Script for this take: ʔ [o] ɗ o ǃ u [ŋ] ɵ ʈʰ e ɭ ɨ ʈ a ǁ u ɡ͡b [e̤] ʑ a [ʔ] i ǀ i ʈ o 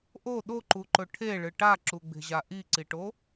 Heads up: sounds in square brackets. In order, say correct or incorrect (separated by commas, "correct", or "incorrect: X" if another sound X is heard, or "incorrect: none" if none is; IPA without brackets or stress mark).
correct, incorrect: ǃ, correct, correct